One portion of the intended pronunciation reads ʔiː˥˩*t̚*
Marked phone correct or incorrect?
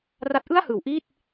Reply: correct